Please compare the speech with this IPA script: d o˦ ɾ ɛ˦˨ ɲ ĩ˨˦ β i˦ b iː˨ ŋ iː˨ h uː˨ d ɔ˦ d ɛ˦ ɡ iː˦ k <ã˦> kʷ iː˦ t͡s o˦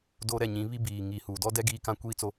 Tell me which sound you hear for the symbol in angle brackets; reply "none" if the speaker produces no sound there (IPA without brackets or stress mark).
ã˦